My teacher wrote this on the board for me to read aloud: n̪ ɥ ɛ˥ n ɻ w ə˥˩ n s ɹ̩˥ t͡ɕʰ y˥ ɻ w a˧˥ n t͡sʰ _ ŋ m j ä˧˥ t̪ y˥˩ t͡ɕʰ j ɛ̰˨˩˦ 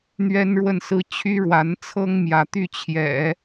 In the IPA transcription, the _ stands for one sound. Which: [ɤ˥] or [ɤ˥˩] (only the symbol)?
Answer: ɤ˥